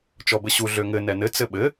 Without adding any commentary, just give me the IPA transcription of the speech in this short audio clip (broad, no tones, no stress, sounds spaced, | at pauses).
t͡ʃ ɔ b ɘ ɕ u ɮ ø ŋ ɘ n ɛ n ɘ t͡s ɘ ɓ ɘ